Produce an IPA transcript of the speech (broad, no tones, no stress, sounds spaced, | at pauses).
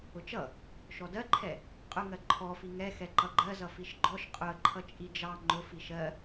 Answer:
ʊ t͡ʃ ʌ | ʃ ɔ d ɜ ǃʰ ɛ | qʼ ʊ ŋ ɜ ǃʰ ɔ f i ŋ ɛ x ɛ ǃ ʌ ɡ͡ǃ ɜ z ʌ f i ʃ ɡ͡ǃ ɔ ʃ qʼ ʊ ə̯ ǃʰ ʌ t͡ʃʼ i d͡ʒ ɑ ŋ͡ǃ ʊ f i ʃ ɜ